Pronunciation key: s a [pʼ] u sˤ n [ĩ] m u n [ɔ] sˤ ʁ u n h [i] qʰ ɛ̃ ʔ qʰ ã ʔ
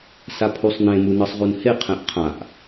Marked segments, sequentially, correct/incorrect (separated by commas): incorrect, incorrect, incorrect, incorrect